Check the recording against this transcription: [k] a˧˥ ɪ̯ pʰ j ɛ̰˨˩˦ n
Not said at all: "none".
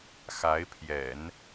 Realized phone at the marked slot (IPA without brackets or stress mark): x